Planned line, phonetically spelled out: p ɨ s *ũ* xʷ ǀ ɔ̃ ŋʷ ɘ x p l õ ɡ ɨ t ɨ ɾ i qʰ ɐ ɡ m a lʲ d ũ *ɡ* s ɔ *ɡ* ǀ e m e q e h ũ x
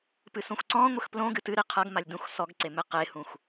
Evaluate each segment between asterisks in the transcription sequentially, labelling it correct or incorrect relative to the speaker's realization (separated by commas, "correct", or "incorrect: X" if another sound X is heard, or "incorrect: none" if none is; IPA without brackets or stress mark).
incorrect: õ, incorrect: x, correct